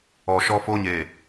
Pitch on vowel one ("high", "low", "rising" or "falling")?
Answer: low